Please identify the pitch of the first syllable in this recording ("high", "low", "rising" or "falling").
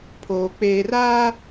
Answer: low